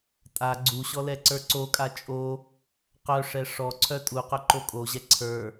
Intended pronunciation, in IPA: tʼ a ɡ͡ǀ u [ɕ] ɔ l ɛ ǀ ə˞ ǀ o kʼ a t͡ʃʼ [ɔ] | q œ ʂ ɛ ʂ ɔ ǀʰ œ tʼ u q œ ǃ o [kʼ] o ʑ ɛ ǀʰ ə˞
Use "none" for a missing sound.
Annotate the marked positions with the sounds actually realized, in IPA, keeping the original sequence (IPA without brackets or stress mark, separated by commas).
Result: ɕ, o, kʼ